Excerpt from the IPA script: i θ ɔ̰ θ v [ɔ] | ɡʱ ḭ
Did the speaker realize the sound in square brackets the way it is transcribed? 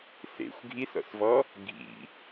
yes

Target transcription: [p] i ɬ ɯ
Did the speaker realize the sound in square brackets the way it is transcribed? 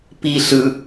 yes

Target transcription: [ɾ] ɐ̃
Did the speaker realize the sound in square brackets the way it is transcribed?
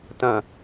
no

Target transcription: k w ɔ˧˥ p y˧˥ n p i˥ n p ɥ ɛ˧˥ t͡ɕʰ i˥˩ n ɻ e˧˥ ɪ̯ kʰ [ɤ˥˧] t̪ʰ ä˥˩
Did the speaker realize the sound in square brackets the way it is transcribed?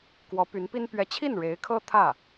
no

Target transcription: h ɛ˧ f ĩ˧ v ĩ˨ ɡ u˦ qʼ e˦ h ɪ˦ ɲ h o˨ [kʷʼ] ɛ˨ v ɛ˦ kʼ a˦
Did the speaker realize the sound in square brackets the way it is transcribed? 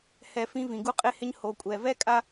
yes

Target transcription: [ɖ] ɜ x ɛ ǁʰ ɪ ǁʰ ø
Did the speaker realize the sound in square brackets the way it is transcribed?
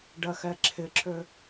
yes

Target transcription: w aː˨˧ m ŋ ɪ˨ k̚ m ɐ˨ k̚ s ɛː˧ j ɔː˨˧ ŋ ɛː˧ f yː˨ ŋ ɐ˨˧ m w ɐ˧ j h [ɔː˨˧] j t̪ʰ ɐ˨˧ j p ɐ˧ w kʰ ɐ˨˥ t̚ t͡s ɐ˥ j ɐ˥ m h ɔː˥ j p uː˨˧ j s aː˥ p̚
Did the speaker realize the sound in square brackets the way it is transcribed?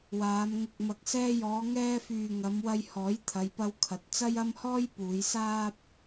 no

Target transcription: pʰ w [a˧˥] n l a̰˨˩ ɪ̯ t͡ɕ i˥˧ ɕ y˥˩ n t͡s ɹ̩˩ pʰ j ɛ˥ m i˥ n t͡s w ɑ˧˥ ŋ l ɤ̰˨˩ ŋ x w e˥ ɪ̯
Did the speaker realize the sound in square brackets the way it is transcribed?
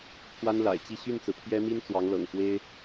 no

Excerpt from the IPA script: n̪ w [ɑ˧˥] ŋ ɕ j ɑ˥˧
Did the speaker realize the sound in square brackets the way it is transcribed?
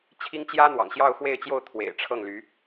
no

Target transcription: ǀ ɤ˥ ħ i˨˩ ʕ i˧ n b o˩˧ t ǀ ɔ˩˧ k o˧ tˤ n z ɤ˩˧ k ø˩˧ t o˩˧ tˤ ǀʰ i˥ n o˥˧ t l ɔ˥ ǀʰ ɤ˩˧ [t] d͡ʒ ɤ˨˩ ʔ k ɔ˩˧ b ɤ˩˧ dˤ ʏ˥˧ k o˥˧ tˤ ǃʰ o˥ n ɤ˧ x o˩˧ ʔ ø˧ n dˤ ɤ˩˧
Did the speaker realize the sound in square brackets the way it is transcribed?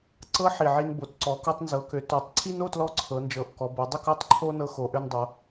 no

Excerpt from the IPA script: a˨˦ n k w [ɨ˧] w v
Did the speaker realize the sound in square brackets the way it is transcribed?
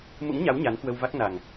no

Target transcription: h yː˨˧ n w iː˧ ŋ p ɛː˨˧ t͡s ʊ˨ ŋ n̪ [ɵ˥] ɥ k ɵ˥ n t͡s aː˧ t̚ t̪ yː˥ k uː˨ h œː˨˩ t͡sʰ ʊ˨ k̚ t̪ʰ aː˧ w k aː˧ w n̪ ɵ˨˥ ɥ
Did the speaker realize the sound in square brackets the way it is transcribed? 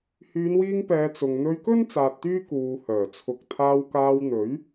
no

